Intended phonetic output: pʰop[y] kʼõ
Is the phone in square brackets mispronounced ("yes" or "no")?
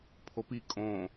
yes